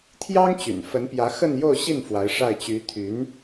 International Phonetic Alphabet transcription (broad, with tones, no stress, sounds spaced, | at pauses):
t̪ʰ j ɑ˥ ŋ t͡ɕ y̰˨˩ n f ə˧˥ n p j ä˧˥ x ə˥˧ n j o˥˧ ʊ̯ ɕ i˥˩ n f w a˧˥ ɪ̯ ʂ a˥˩ ɪ̯ t͡ɕ y˧˥ t̪ʰ y˧˥ n